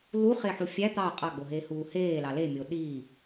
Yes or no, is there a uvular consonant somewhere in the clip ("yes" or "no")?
yes